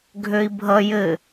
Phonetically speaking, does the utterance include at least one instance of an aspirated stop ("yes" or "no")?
no